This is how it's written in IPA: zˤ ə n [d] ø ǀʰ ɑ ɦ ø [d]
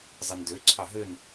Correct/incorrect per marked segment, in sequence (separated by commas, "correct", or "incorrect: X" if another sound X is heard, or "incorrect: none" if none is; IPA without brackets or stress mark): correct, incorrect: n